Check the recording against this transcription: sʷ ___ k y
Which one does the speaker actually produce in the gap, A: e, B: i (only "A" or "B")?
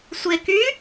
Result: A